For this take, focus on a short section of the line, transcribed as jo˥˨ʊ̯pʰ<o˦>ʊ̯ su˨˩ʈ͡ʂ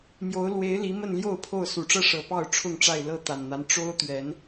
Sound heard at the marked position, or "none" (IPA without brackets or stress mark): o˥˨